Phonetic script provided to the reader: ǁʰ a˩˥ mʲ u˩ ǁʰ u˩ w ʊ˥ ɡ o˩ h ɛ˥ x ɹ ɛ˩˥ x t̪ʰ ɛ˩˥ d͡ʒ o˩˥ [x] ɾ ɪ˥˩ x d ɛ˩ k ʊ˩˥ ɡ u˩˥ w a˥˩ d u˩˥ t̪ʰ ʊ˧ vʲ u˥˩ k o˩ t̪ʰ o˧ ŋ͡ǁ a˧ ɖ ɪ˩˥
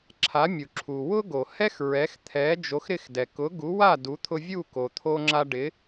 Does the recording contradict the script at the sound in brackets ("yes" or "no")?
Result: no